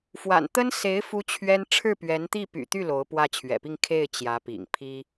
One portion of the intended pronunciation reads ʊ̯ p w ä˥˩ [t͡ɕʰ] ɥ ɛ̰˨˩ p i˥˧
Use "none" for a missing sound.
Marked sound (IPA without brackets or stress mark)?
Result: t͡ɕʰ